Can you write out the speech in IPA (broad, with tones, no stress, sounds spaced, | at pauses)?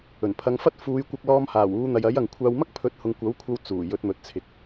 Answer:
ɵ˨˩ n pʰ ɐ˧ ŋ f ɐ˥ t̚ f uː˨˧ j kʷ ɐ˧ k̚ l ɔː˧ m h aː˨˩ w uː˨˧ n̪ ɐ˨ j ɐ˨˥ j ɐ˨ ŋ kʷʰ aː˧ w m ɐ˥ k̚ pʰ ɵ˨˥ t̚ h ʊ˨ ŋ kʷ ɐ˨˥ w kʷʰ ɐ˧ w t͡s uː˨˩ j ɵ˨˥ t̚ m ɵ˨ t̚ t͡sʰ ɪ˨ k̚